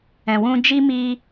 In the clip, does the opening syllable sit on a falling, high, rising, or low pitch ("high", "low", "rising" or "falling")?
low